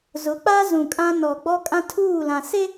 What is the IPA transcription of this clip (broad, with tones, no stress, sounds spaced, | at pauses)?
z ʊ˨˦ k͡p a˦ z ũ˨ kʼ ã˦ n ɔ˨ ɡ͡b ɔ˦ kʼ ã˦ tʰ uː˦˨ l ã˨ s e˦